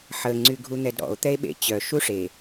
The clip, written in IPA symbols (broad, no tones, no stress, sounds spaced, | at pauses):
ħ ə ŋ͡ǀ y ɡʱ u n̪ ɛ d ɾ ɔ̰ o̯ t̪ ɛ e̯ ɓ ḛ t͡ɕ œ ʃ u ʂ e